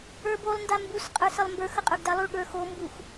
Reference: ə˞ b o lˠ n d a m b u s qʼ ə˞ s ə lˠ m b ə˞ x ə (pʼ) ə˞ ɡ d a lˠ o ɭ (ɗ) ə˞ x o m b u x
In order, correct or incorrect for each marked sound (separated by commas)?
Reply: incorrect, incorrect